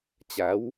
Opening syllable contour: rising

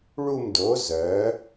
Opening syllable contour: falling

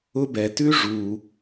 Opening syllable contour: high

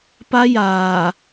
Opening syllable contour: high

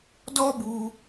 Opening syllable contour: high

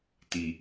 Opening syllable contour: low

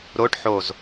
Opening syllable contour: rising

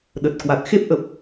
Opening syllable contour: low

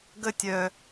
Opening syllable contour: high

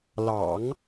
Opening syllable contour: low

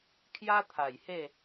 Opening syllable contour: high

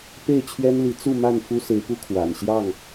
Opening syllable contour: falling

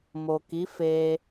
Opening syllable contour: low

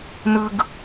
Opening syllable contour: high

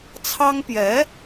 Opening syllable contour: high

